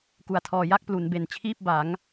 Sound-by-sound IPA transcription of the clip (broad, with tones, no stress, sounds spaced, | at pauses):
k u˨˩ a̯ tʰ ɔː˧ j a˥˩ k̚ p l u˩˦ n b e˨˩ n t͡ɕʰ iː˥˩ p̚ b a˩˦ ŋ